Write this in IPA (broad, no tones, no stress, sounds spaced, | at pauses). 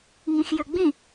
ŋ ĩ x j ø ɡ͡b ĩ